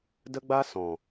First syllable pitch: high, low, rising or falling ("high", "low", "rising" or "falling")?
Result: high